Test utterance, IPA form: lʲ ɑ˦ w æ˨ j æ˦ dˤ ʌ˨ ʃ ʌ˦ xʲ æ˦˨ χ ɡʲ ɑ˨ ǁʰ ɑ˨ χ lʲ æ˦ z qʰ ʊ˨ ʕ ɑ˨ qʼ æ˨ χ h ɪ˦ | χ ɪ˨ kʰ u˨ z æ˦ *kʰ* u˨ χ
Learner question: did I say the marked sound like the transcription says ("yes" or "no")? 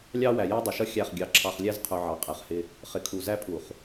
no